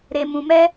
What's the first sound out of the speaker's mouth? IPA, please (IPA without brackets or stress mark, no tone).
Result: ɾ